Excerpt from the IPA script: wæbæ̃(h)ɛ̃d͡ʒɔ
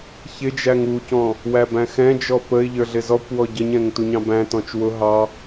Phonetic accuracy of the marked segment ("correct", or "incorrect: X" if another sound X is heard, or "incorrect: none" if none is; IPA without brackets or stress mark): incorrect: x